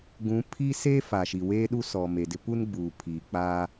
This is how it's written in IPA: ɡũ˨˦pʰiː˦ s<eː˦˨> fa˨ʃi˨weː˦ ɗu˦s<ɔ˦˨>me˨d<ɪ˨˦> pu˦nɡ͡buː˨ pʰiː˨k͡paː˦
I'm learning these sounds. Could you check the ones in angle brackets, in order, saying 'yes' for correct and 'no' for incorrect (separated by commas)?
no, no, no